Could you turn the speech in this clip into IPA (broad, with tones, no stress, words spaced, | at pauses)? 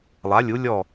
lˠa˩˧lʲu˩˧ lʲɔ˧˩